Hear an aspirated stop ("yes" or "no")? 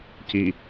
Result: no